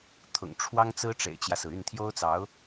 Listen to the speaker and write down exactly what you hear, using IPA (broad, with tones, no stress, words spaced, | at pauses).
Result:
t̪ʰʊ̰˨˩ŋʈ͡ʂʰwɑ˥ŋt͡sɹ̩˥ ʈ͡ʂḛ˨˩ɪ̯t͡ɕjä˦sɹ̩˩y˥˩n t̪ʰjo˥ʊ̯t͡sɑ˧˥ʊ̯